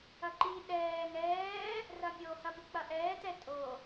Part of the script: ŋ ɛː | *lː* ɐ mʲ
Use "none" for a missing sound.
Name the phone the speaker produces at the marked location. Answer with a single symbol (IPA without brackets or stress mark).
r